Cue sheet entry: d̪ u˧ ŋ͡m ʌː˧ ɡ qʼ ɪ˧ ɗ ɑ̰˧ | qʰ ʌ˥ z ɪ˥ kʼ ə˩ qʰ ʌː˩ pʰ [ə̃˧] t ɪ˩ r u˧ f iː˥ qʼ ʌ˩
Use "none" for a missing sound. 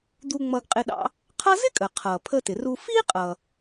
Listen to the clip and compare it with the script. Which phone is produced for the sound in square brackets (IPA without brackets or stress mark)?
ə˧